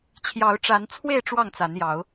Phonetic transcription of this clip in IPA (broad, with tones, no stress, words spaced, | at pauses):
t͡ɕʰjɑ˨˦ʊ̯ʈ͡ʂa˨˦nt͡sʰwe˥˨ɪ̯ ʈ͡ʂwɑ˥˨ŋt͡sa˨˦njɑ˨˦ʊ̯